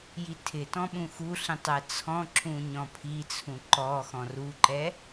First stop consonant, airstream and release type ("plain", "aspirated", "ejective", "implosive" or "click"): aspirated